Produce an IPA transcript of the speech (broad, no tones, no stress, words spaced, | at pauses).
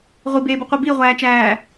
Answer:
ʁʷibeːbuqʷi biʁʷæːt͡ʃæː